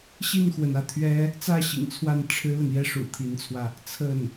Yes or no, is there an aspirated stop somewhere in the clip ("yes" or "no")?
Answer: yes